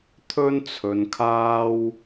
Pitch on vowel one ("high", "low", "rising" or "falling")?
high